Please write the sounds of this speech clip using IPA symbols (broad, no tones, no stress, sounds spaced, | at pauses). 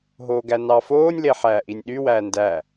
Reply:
ɦ oː ɡ æ n ɑ f oː nʲ l e ħ æː ʔ i nʲ ɗ y w æː n d æ